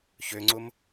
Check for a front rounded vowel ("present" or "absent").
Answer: present